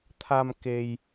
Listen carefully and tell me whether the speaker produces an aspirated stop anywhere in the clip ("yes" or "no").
yes